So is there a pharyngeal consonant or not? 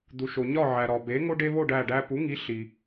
yes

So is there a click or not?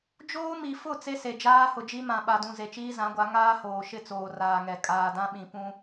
no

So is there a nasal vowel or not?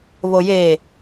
no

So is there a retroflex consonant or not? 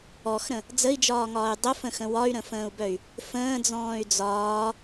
no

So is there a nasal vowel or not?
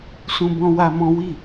yes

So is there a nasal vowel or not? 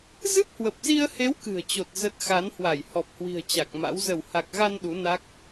no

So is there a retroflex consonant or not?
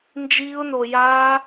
no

